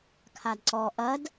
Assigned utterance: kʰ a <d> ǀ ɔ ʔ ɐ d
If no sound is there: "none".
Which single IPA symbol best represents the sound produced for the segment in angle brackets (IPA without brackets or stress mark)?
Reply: d